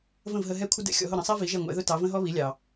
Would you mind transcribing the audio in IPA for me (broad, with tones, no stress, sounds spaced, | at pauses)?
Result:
v ə̃˥˩ v ɦ ə˧ ɦ ɛ˥ kʷʰ ɪ˥ d ɛ̰˥ xʲ ɔ̰˧ ɦ ʊ˥˩ ɾ ə̃˩˥ sˤ ɛ˥ v i˩˥ ʒ ɛ˥˩ ŋʷ ɛ̰˩˥ ð ʊ˥ t ɑ˩˥ v ə̃˥ ɦ ɔ˥ β i˩˥ lʲ ɑ˩